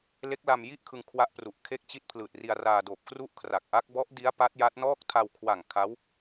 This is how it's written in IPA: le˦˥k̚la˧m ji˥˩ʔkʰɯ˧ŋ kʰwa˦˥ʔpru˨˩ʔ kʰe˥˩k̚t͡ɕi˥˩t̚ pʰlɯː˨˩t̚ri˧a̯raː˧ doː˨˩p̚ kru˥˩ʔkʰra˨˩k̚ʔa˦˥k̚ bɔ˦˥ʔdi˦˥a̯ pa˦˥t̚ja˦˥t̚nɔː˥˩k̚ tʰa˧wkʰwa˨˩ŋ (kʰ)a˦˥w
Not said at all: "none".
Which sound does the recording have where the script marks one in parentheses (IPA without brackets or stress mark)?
kʰ